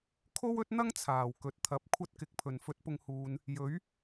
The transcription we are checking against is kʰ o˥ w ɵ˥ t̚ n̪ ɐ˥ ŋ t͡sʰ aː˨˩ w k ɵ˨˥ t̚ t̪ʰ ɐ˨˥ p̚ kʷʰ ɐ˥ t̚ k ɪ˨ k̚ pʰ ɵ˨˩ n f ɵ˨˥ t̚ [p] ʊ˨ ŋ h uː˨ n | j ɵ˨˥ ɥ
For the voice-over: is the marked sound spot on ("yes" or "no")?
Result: yes